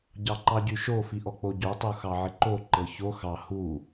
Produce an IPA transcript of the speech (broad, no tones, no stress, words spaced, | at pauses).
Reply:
ɟɑǃɑɟyʃo fiʔɔk͡poɟo tˤuxɑʕɪǃo ǃɤço xɑ hu